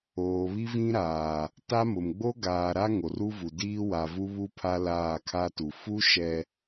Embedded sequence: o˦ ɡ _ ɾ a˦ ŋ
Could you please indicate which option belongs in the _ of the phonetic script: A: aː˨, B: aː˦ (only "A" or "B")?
A